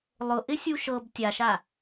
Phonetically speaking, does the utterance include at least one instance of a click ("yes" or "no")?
no